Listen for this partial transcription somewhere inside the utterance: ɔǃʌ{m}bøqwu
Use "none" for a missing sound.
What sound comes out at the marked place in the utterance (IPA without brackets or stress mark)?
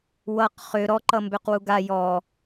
m